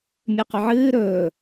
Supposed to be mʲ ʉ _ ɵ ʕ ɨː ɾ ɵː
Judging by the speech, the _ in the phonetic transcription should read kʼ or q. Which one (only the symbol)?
q